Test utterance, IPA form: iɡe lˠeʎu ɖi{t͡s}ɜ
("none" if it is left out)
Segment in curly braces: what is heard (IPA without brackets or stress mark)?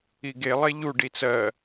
t͡s